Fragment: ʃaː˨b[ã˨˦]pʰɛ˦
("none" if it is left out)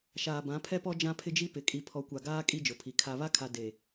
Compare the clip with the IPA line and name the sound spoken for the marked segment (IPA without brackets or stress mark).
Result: ã˨˦